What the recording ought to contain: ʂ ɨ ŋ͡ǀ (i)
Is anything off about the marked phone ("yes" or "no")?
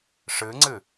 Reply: yes